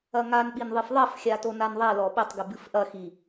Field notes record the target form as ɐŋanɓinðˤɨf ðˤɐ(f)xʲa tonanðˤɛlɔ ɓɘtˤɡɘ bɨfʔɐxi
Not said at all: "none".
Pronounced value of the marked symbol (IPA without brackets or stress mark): f